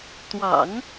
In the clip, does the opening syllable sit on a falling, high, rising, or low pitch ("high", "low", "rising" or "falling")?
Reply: low